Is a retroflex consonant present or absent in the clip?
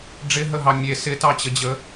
present